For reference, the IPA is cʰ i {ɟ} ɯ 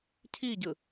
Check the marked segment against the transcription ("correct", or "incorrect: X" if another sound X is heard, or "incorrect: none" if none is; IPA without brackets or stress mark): correct